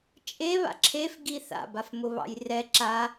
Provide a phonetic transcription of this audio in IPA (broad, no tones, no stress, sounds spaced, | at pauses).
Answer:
t͡ʃʼ e β a̰ ǁʰ e f ɡ i θ a̰ b a f m ʊ β ɑ̰ j r ɛ ǁ a